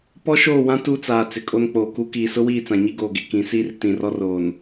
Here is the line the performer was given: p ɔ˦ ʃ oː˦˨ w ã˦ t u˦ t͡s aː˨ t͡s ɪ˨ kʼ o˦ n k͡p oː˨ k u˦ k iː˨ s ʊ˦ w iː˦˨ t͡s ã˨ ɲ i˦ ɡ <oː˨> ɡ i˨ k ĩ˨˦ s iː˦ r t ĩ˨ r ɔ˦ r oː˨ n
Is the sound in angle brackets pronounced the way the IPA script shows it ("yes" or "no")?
yes